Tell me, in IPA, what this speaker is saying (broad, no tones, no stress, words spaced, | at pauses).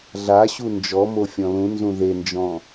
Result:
ɮaɕu nd͡ʒɔmo fʲɔ̃lũnzũ ðend͡ʒɔ̃